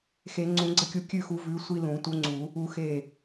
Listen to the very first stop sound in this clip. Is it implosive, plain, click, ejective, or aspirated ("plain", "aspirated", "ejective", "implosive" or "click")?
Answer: click